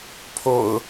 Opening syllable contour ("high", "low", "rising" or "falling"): low